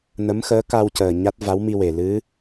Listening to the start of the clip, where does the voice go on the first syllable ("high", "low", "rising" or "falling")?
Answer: rising